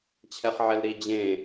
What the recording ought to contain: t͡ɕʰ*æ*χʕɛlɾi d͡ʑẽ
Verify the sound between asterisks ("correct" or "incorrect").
incorrect